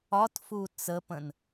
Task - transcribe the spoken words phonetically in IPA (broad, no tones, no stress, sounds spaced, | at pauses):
ɒ t f u t͡s ə p ə̃ n